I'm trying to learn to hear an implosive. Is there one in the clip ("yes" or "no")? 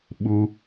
yes